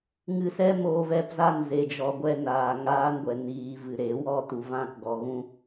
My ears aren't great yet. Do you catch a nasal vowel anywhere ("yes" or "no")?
yes